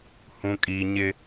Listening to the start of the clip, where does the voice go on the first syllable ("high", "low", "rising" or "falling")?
high